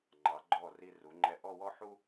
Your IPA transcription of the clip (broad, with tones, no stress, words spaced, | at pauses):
ŋ͡ǃɑ˩˧ɡ͡ǃɔ˧˩ ri˧ru˩˧ŋ͡ǃɛ˧ ʔɔ˥˧wɔ˥ħu˥